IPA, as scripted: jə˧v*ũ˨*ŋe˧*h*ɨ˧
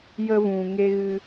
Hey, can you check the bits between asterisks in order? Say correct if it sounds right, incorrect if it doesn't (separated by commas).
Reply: correct, incorrect